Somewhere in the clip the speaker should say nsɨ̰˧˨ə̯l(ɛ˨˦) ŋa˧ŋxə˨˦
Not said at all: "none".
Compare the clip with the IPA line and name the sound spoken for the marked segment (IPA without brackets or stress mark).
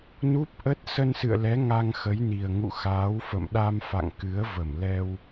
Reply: ɛ˨˦